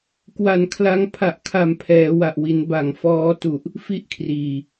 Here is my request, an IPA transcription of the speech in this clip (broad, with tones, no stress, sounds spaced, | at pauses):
k w a˨˩ n kʰ l a˧ ŋ pʰ a˨˩ ʔ kʰ a˨˩ m pʰ ɛː˩˦ w a˨˩ ʔ w i˩˦ n b a˨˩ ŋ f ɔː˦˥ t u˨˩ ʔ | f i˥˩ ʔ kʰ r iː˨˩